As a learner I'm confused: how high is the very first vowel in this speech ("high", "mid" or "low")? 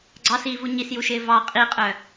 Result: low